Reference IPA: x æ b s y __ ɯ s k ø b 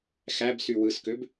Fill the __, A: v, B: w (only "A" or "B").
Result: B